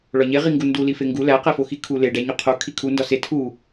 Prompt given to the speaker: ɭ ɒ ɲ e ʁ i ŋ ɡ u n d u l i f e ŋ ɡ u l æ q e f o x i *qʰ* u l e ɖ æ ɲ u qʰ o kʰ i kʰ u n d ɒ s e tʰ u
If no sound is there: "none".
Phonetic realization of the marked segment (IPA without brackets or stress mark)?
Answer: kʰ